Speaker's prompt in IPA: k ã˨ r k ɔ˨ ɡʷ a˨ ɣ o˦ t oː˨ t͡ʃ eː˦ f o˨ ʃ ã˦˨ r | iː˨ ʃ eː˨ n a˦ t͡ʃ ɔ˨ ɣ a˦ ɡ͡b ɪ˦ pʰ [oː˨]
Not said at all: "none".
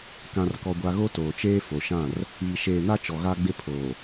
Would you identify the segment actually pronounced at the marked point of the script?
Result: oː˨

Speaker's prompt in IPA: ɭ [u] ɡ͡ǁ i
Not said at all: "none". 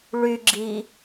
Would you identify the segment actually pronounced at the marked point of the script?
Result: y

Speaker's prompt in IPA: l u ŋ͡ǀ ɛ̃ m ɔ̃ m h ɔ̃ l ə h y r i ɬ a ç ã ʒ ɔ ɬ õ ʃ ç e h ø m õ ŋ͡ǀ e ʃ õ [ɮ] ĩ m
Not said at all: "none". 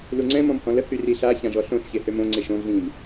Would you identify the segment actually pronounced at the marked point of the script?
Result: ɮ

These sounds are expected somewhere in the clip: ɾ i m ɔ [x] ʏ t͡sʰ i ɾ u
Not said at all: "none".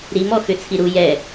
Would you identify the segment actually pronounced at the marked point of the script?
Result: x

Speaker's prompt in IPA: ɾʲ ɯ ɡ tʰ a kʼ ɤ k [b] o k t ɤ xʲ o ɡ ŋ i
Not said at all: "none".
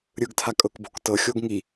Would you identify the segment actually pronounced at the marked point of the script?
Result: b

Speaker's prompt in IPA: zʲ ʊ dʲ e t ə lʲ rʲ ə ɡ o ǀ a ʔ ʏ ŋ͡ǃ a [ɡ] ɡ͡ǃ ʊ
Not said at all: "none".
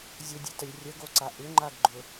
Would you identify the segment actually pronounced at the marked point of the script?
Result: ɡ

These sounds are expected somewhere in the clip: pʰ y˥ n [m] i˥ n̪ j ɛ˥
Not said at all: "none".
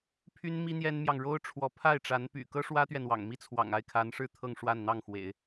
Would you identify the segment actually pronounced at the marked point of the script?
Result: m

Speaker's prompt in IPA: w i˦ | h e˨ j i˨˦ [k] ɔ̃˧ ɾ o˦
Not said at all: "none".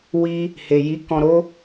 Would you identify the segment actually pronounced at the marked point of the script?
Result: k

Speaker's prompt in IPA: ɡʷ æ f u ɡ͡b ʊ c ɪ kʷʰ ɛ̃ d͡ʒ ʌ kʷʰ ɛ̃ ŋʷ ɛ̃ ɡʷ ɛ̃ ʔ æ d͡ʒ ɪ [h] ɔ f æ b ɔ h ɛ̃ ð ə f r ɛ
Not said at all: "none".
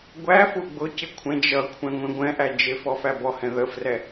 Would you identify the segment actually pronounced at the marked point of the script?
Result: f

